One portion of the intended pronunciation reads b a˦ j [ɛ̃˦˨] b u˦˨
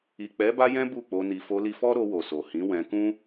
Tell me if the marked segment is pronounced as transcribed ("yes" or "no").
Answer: no